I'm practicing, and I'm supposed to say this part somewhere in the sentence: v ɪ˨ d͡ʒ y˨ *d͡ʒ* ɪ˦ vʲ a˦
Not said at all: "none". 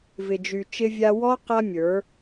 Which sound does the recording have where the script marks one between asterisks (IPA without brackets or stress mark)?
t͡ʃ